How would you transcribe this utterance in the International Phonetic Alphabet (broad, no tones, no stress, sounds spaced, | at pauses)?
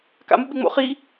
k a̰ m u ɓ e ŋ͡m o̰ χ i